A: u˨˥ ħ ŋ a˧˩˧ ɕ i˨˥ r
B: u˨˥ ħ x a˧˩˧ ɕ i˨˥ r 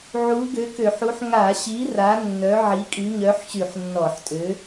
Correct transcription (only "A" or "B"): A